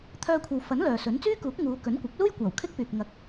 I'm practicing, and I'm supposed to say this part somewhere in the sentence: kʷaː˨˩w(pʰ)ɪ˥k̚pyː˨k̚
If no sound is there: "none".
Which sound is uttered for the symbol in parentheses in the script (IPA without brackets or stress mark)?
kʰ